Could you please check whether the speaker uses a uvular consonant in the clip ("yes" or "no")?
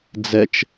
no